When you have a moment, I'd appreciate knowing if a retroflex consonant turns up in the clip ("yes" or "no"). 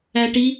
yes